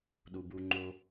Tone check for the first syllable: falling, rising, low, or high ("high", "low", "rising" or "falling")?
low